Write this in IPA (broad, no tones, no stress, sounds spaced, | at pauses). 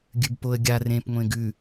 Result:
ɡʲ ʉ b p o ə̯ ɡʲ a r ẽ p ŋʷ ẽ ɡ ʉ